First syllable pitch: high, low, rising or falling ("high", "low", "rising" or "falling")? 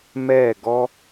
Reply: falling